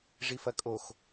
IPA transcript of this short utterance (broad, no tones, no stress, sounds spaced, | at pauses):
ʐ i f ɐ kʼ o x